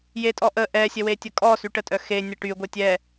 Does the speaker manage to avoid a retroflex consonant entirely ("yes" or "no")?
no